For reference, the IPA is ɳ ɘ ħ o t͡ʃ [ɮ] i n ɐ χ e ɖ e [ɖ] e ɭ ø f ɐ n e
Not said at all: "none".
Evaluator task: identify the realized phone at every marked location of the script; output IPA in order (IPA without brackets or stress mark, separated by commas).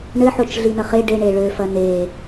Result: ɮ, ɳ